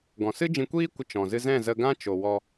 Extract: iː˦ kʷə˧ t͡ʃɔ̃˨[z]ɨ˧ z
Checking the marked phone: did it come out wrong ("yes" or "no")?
no